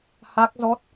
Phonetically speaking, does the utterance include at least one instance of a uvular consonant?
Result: no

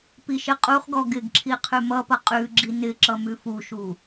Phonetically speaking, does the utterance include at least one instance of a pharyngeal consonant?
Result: no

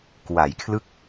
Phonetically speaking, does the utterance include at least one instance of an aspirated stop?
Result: yes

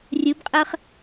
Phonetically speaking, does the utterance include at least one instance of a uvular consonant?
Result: yes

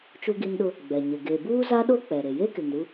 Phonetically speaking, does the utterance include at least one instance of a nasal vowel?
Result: no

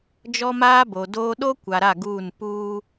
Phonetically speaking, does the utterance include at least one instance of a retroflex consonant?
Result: no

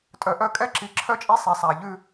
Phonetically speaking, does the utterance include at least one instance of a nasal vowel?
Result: no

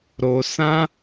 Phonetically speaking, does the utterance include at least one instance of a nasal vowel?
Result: yes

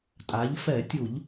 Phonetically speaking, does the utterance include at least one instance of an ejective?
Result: yes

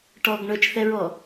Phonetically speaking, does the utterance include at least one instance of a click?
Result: no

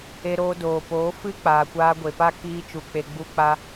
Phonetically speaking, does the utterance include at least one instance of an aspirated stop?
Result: no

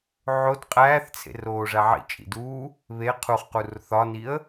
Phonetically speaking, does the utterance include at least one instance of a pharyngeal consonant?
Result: yes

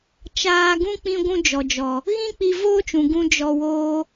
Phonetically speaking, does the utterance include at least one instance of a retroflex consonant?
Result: no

